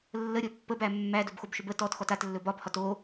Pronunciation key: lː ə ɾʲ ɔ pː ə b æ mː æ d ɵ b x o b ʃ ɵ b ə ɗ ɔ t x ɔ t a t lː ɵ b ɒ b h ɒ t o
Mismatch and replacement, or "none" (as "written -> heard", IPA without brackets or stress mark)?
ɗ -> t